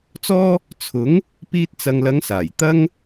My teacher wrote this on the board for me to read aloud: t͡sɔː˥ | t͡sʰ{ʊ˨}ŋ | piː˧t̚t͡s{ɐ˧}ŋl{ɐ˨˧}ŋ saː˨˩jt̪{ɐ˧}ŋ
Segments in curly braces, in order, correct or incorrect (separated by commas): incorrect, incorrect, correct, incorrect